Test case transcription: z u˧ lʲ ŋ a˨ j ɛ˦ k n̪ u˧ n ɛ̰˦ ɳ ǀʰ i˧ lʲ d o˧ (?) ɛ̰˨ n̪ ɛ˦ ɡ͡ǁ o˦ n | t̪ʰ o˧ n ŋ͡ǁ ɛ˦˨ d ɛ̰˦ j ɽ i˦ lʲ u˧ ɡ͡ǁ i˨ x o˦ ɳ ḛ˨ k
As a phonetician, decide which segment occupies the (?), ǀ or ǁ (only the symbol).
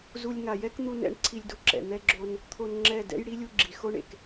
ǁ